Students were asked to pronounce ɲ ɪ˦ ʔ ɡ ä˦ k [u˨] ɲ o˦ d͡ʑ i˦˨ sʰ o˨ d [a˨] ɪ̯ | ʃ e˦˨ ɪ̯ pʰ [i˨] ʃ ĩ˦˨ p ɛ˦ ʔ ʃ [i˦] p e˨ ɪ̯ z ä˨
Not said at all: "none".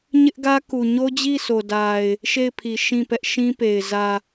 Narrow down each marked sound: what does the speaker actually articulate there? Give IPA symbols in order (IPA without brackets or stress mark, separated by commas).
u˨, a˨, i˨, ĩ˦